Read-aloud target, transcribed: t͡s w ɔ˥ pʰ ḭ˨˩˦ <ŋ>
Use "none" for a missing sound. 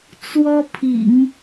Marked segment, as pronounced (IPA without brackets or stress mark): ŋ